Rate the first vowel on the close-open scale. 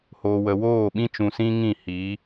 mid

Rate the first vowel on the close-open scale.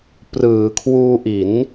close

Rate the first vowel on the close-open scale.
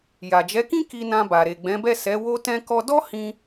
open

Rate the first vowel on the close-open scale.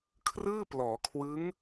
close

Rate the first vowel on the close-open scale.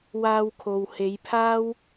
open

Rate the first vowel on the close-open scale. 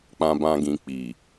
open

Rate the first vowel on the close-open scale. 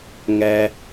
mid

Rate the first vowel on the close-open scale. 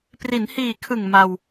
close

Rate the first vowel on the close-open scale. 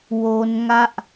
mid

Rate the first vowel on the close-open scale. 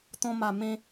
mid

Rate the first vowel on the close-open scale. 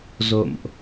mid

